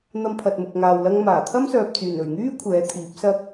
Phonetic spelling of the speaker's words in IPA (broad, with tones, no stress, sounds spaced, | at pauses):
n̪ ɐ˧ m pʰ ɐ˨ t̚ m ʊ˨ k̚ ŋ aː˨ w l ɐ˧ ŋ m aː˨˩ t̪ʰ ɐ˥ m s œː˨ p̚ t͡s yː˨˩ n ɵ˨˩ ɥ ŋ yː˥ kʷʰ ɛː˨˥ t̪ʰ iː˨˥ p̚ s ɐ˥ k̚